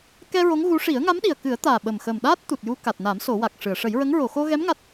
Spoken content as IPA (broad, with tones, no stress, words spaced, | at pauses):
kɛ˧ ɹo˧˥ŋɣu˧˥ ʂi˨˩˦ə̯ŋa˧˥mɗi˨˩ə̯kɨ˨˩˦ə̯ t̪aː˨˩ɓə˨˩mxə˨˩mɗaː˦˥t̚ t̪u˨˩t̚ju˧ ka˨˩t̚na˨˩˦m so˨˩˦wa˨˩k̚ʂɨ˨˩˨ə̯ ʂə˨˩˦jɹə˧˥ŋ ɹo˨˩˨xo˧ɣɛ˧˥m ŋa˦˥t̚